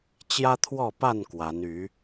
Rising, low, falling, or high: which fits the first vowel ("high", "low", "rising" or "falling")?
high